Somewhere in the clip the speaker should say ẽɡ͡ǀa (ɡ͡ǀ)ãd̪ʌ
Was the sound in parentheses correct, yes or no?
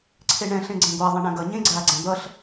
yes